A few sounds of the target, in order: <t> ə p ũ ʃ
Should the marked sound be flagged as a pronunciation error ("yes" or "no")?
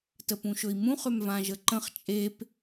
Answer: no